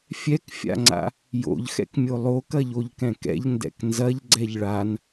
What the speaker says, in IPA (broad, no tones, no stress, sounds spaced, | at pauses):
fʲ ɛ k fʲ a̰ ŋ͡ǀ a̰ | j o̰ ʎ x ɛ̰ k mʲ o lˠ o k ɐ ʎ o ʎ k ɛ̃ k ɛ̰ ʎ n d ɛ̰ k n z ɐ ʎ ɡ͡ǀ ɛ ʎ ɭ a n